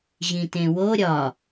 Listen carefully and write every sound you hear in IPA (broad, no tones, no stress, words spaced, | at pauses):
ʑĩtẽwo ɾʲɒ